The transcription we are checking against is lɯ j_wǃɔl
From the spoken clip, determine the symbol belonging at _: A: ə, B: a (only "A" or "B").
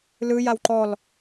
B